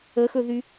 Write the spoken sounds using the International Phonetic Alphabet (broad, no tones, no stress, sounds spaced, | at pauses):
ə x ɵ ð y